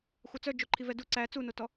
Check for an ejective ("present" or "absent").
absent